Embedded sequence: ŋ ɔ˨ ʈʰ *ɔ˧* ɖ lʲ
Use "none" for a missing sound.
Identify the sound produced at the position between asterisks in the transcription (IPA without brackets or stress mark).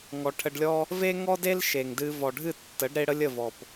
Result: ə˧